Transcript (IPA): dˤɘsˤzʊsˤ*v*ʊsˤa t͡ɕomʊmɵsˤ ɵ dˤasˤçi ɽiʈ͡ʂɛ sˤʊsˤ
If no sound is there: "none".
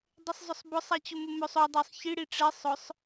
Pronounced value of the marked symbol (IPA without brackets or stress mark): b